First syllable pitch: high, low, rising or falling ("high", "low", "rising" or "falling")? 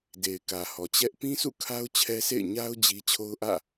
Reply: low